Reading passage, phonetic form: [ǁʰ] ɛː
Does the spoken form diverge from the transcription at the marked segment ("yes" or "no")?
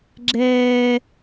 yes